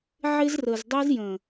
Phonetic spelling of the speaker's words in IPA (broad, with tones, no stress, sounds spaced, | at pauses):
ʕ ɪ˦ z r ə˨ z dˤ ɛ˦ z j ə̃˨